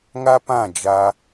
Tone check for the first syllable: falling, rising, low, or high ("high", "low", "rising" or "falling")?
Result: high